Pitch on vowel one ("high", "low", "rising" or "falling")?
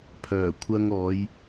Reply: low